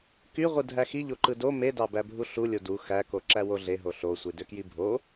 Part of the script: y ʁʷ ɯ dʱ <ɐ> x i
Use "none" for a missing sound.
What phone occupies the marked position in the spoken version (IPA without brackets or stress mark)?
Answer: æ